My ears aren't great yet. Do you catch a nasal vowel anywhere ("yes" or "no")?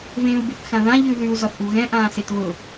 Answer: yes